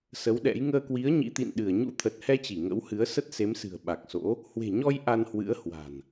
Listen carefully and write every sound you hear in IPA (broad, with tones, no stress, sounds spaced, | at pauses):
s ə˨˦ w ɗ ɛ̰˧˥ j ŋ əː˧ k w i˨˦ ə̯ ɲ ḭ˧˥ t̪ ḭ˧˨ n ɗ ɨ˧˩ ə̯ ɲ ṵ˧˥ t̪ʰ ə˨˩ t̚ h ɛ˧ t͡ɕ i˧˩ ŋ ə̰˧˥ w h ɨ˨˦ ə̯ s ə˦˥ t̚ s e˨˦ m s ɨ̤˨˩ ə̯ ɓ a˨˩ k̚ s o̰˧˥ | h w e̤˨˩ ɲ ɔ˧ j ʔ a˧ n h w ɨ̰˧˥ ə̯ h w a̤˨˩ n